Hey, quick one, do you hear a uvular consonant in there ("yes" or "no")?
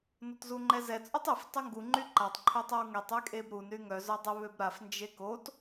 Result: no